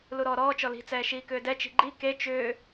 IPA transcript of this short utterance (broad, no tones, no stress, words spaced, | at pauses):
luɾɔːɾɔː t͡ʃɔli̤t͡sɛː ʃiːkʏːdɛt͡ʃi̤ ɡ͡ǃi ke t͡ʃʏː